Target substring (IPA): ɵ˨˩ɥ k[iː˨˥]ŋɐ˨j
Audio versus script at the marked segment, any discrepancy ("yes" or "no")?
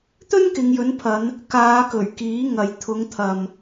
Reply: no